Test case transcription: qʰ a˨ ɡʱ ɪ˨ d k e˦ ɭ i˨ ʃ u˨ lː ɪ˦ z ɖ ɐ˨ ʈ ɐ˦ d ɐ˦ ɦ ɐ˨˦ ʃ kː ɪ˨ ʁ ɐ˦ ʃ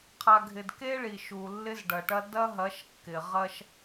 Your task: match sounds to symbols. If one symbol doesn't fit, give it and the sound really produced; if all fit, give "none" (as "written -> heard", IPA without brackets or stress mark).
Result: none